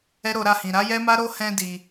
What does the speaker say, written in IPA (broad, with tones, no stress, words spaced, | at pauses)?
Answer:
ɛ˦ɾo˧ɾa˧hĩ˨ ɾa˨˦jɛ˦ma˦ ɾo˦hɛ̃˧di˨